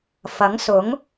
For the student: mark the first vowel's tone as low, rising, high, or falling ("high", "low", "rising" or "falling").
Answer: rising